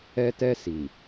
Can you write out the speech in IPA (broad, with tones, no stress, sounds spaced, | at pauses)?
ɛ˦ t ɛ˦ s i˨